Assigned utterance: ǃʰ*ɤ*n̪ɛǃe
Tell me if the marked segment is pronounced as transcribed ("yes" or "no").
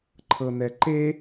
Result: yes